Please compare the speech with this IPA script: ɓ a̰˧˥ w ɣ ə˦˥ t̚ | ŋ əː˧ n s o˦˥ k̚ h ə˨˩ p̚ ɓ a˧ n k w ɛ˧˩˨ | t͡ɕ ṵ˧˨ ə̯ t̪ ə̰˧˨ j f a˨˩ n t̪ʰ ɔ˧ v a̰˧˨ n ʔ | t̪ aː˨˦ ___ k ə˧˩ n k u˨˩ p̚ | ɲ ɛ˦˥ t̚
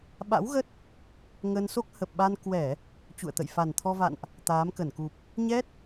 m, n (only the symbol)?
m